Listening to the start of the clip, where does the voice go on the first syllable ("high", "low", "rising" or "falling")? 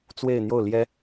falling